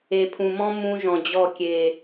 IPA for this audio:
e˨ pʰ ũ˨ m ɔ̃˦ m ũ˦ ʒ ɔ̃˨ d͡ʑ ɔ˦˨ kʲ e˨

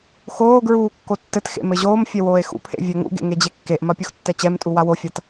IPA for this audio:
x oː ɡ ɹ uː kː o tː ɘ t x ḛ m ɘ ʑ oː m fʲ ɛ w oː e̯ x ṵ pʰ ḛ vʲ ɛ ŋ ṵ ɡ ḛ ŋ e d͡ʑ e kː e ʔ m ɐ pʲ u x tː ɛ t͡ɕ ɛ m tʼ u w a w o fʲ a t

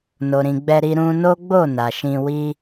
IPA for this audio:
n o˨ ɾ ĩ˨ ɡ͡b ɛ˧ ɾ i˧ ɾ ũ˧ n o˦ ɡ͡b o˦˨ n a˨ ʃ ĩ˧ w i˦

